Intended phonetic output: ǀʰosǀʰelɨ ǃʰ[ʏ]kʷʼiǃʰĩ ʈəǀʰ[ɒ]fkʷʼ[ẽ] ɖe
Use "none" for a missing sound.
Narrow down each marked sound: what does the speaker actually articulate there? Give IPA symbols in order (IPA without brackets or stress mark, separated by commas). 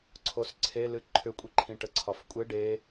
ʏ, ɒ, e